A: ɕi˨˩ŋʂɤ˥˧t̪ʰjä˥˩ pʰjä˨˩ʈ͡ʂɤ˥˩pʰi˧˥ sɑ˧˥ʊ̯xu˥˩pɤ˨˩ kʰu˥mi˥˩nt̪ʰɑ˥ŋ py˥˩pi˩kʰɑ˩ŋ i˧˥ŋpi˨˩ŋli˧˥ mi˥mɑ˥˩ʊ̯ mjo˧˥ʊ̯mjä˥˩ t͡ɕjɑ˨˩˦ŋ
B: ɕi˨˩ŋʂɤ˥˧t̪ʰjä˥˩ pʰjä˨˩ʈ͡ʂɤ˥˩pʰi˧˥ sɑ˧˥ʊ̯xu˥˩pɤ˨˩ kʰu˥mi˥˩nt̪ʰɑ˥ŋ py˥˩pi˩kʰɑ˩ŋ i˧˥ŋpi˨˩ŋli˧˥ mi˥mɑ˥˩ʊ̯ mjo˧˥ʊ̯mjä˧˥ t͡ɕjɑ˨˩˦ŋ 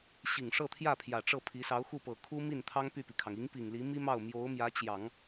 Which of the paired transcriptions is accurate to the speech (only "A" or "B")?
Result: B